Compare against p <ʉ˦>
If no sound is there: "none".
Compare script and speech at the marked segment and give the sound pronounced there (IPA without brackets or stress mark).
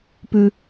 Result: ʉ˦